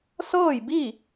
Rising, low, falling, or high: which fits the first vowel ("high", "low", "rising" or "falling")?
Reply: falling